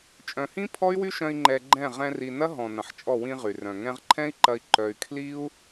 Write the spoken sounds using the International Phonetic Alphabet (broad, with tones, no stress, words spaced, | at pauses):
t͡ʃʼœ̃˨hĩ˦ pʰɔ˦y̯wy˦ʃœ̃˧i̯ ŋ͡ǃɛ˧ɡ͡ǃɛ̃˦˨ ʁɛ̃˧ri˨nɐ˦ ɦɔ̃˨ nɐ̃˨ħt͡ʃʼɔ˦˨ wĩ˧ ʁy˨rœ̃˨ ŋɛ̃˧ʁǃʰɛ̃˦i̯ǃɐ˧i̯ ǃœ˧y̯ kʰli˦u̯